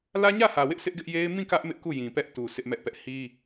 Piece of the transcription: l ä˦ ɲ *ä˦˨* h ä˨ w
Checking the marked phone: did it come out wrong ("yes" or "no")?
no